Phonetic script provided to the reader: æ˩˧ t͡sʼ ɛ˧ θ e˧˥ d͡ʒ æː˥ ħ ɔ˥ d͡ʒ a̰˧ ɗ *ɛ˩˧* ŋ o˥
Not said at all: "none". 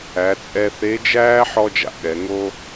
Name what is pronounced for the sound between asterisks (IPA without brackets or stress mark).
ɛ˩˧